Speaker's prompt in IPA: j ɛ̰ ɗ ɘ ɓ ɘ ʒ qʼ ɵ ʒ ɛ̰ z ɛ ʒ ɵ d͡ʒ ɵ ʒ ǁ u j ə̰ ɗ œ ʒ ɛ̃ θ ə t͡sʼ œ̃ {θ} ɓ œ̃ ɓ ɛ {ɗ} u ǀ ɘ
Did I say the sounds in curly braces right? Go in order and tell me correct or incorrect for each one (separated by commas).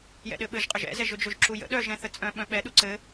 incorrect, correct